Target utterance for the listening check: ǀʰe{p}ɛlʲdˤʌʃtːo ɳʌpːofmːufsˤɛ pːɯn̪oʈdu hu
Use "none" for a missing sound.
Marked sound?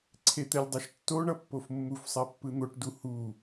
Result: t̪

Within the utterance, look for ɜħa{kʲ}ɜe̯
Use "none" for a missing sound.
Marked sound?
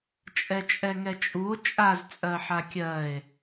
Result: kʲ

